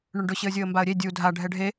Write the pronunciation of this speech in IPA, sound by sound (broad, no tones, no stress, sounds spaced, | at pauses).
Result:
ɳ ʊ ɳ ɖ ʊ ɕ ɪ ə̯ zʲ o ə̯ m b a ə̯ ɾʲ e dʲ u dʱ a ɖʱ ɛ ɖʱ e